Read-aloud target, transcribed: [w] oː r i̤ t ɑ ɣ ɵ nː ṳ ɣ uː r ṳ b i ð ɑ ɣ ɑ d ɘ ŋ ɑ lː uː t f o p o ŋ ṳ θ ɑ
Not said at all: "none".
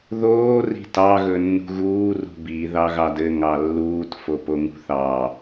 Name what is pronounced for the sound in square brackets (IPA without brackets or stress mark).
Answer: ð